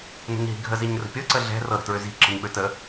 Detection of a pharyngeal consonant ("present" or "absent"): absent